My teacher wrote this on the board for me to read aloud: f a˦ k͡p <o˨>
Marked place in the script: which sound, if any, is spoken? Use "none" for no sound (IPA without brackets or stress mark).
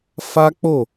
o˦˨